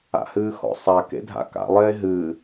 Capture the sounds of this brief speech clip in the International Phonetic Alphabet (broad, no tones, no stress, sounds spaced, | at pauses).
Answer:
a̰ h ɨː x ɔ̰ sˤ a k ḛ dʱ a̰ k a̰ lˠ eː ɦ ɨː